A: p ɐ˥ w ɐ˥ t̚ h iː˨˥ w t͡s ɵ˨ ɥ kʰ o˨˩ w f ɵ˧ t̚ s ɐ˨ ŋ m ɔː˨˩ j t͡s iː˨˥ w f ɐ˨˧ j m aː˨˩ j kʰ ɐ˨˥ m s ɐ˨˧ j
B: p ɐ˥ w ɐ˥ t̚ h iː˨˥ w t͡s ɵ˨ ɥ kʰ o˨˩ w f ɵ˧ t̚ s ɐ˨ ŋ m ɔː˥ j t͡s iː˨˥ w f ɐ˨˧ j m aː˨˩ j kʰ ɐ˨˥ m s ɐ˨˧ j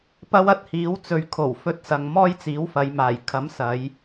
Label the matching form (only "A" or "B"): B